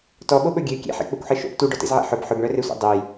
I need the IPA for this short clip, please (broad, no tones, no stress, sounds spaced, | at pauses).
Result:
t ɔ ɓ o ɓ ɵ ɡʲ ø kʲ ḛ ħ ḛ k͡p ø kʷ ħ e ʃ o̰ p t u ɖ ɔ t ḛ z ʕ ḛ ħ ɵ b ħ ɵ b ɳ œ r e sʷ ḛ dˤ ɵ j